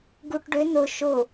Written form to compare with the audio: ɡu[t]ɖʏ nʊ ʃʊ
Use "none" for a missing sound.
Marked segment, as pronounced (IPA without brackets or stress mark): ʈ